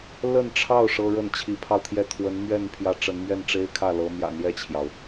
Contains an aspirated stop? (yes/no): yes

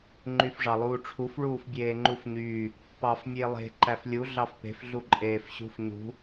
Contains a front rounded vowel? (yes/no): yes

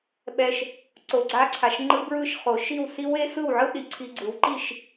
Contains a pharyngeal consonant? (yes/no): yes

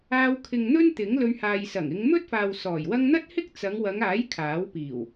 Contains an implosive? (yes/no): no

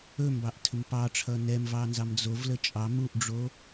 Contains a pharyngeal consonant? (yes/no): no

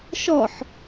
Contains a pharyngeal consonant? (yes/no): yes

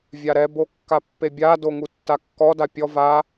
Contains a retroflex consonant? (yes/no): no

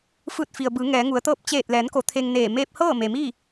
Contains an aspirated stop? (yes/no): yes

